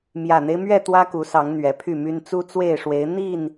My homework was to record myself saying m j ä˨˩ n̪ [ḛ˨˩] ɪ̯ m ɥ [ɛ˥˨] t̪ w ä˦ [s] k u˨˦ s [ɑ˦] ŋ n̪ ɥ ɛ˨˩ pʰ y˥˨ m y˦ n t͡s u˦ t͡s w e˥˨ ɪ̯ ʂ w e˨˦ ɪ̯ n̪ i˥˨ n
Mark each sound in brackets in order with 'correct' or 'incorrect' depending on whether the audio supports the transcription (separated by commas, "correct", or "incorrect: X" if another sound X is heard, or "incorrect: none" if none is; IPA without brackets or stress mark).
incorrect: e˦, correct, incorrect: none, incorrect: ɑ˨˦